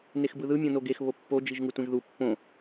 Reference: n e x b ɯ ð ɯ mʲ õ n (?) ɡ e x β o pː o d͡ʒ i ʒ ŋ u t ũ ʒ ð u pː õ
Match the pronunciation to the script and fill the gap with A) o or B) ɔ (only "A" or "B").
A